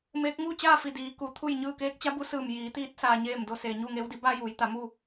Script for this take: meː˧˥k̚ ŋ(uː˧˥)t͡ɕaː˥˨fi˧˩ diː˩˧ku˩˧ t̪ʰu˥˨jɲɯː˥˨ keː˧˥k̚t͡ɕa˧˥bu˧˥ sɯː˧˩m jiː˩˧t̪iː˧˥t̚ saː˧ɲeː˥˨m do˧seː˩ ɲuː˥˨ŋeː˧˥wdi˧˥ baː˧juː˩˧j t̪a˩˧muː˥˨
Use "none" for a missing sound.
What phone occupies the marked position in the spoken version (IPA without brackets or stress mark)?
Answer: uː˥˨